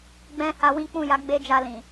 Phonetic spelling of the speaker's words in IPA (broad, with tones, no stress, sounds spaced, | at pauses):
ɡ͡b ɛ̃˧ h a˧ w ĩ˦ k͡p ũ˦˨ j a˨˦ ɡ͡b e˦ d͡ʒ a˧ l ĩ˨